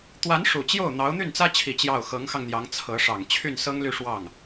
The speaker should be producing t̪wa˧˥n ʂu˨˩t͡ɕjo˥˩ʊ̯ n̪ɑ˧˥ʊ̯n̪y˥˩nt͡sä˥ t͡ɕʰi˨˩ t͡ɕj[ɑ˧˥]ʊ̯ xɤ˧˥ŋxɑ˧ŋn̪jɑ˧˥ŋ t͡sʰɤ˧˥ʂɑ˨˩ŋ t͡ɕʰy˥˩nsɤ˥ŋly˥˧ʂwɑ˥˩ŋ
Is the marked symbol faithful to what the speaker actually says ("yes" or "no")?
no